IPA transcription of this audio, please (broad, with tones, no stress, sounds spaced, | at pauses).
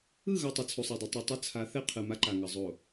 ɯ˦˨ ɣ ʌ˨ tˤ ʌ˨ t͡sʰ u˨ sˤ a˨ dˤ ɛ˨ tˤ u˨ tˤ ʌ˦ t͡sʰ a˨˦ θ ɛ˦ qʰ ɯ˨ m a˦ ǃ a˨ ŋ ʌ˨ zˤ o˨